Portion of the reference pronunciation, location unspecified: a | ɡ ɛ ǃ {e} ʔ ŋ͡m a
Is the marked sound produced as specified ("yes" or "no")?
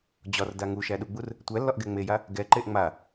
yes